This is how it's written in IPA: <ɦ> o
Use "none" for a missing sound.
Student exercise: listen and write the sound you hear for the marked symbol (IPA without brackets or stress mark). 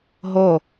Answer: ɦ